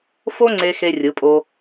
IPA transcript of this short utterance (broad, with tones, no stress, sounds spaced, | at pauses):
f o˥ ŋ͡ǀ e˧ x e˧ rʲ ɯ˩˧ pʼ o˧